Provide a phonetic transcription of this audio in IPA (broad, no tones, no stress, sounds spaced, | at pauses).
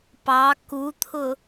p ɑ k u t̪ʰ ʊ